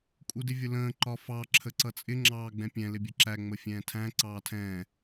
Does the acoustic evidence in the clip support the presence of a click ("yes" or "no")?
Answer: yes